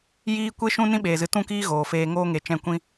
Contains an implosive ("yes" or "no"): yes